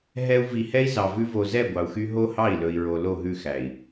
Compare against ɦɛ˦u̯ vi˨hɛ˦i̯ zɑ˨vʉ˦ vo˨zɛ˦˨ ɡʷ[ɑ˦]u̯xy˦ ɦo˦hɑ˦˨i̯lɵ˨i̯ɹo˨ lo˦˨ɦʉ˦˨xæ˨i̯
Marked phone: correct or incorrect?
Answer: incorrect